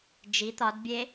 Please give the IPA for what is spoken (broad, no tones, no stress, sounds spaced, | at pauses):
d͡ʒ i t̪ ɒ d bʲ e